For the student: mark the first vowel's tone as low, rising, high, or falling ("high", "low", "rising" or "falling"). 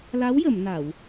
rising